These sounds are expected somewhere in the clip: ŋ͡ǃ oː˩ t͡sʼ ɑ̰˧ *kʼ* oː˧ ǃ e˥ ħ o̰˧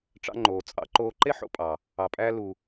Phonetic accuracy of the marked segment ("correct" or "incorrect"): incorrect